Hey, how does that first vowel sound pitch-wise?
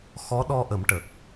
rising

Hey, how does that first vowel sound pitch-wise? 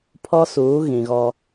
high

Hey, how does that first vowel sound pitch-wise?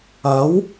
rising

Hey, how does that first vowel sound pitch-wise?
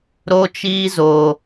high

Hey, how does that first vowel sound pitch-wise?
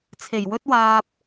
low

